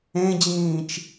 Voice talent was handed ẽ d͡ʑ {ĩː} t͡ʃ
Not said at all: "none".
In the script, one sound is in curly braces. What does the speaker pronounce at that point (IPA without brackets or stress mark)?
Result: ĩː